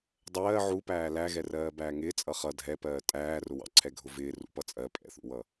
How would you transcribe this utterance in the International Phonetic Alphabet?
dˤ ɜː ʕ u p æː l æ ɣ ɛ r ɜː b æː ŋ ɪː t͡sʼ ʌ χ ʌ dʱ ɛ p ɜː tʼ æː r ʊ w ɑ̰ ǀʰ ɛ ɡʱ ʊ v ɪː r ṵ p ʌ t͡sʼ ɜ pʼ ɛ̰ θ ṵ w ʌ

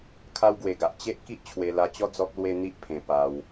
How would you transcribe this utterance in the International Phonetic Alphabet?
kʰ a˦ w ɡ w e˧ ɡ a˨ ʔ t͡ɕ e˦ ʔ k i˦ ʔ t͡ɕʰ w e˧ l a˧ t͡ɕ ɔ˦ d͡z ɔ˦ k̚ l w e˦ n̪ i˦ ʔ pʰ ẽ˧ p a˧ w

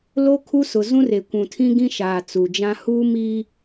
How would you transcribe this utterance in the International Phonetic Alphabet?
l o˦ kʰ u˦ s ʊ˨ z ũ˦ r e˨ kʷ ũ˨ tʰ ĩ˦ ɡ ĩ˦ ʃ aː˨ t͡s u˨ d͡ʒ ã˦ h uː˦ m i˦

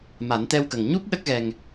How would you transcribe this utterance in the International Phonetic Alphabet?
m a˨˩˦ n t̪ ɛ˧ w k ə˨˩ ŋ ɲ u˦˥ p̚ ɗ ə˦˥ k̚ ɣ ɛ˧ ŋ

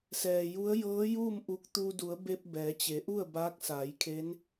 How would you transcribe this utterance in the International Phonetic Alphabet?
s ɛː˩ j u˧˥ ə̯ j ɤː˧˥ j uː˥˨ m ʔ u˧ k̚ t̪ u˧ d u˩˧ ə̯ b e˧ p̚ b ɛː˩˧ t͡ɕ e˩˧ ʔ u˥˨ ə̯ b aː˧˥ k̚ s aː˩˧ j kʰ e˧˥ n

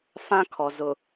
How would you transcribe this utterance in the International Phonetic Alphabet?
f ã˦ kʰ ɔ˨ z ʊ˨

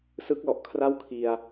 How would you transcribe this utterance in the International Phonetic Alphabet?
s ɯ˦˥ k̚ l ɔ˨˩ ʔ kʰ r a˥˩ w kʰ i˧ a̯

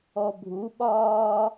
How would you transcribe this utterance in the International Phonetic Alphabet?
ɔ bʱ u ɓ ɒː

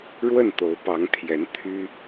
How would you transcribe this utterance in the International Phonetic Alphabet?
ɻ w ə˥˩ n t̪ o˧˥ ʊ̯ p ɑ˧˥ ŋ t̪ʰ j ɛ˧˥ n t̪ʰ y˥

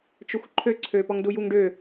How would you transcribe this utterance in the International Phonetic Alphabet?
t͡ʃ ɵ xʷ ǃʰ ø ǀʰ ø p ɔ ŋ d u j u ŋ ɖ ø

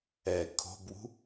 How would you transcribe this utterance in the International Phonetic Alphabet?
ɛ kʰ o̤ b w ṳ

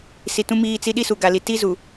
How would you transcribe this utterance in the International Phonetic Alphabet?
s i˨ t ũ˦ m iː˦˨ t͡s i˦ ɗ i˦ s u˨ ɡ a˨ l i˨ t i˦ z u˨

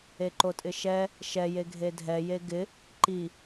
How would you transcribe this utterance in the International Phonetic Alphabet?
e ǃ o tʼ ɪ ʃ ɛ | ʃ ɛ j e ɡʱ e dʱ ɛ j e ɡ ɪ | ǃ i

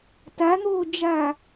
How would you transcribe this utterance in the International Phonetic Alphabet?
t a n̪ oː d͡ʒ a

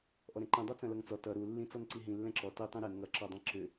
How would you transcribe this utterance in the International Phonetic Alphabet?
ʔ ɔ ɾ ɛ̃ ǃ ĩ dˤ ɤ t͡s ɐ̃ l ʌ ŋ t͡s ɔ t ʌ ɾ u lː ĩ t͡s ɔ n ǀ i ɦ ĩ lː ɛ̃ ǁ ɔ t i tˤ ĩ ɾ ɛ n ŋ ʌ ǁ ɔ dˤ ɛ̃ ǁ ʏ

